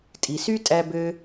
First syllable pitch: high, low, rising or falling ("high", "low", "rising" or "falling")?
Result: low